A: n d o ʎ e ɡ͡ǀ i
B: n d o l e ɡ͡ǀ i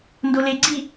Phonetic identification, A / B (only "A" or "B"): B